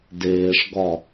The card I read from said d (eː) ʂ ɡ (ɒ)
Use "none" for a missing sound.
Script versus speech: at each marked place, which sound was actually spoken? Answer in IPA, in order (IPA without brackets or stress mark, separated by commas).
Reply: eː, ɒ